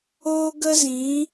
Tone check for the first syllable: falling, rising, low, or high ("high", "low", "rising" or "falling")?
high